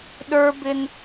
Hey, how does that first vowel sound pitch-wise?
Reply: high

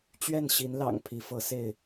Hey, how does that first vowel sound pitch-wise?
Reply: falling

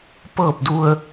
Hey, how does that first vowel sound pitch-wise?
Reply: falling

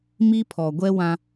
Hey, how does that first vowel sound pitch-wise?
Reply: high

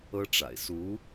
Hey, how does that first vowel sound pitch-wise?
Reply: high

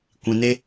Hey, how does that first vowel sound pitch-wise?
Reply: low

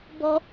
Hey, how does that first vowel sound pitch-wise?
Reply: high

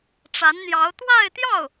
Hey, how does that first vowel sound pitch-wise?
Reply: rising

